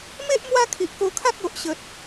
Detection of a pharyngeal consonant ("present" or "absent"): absent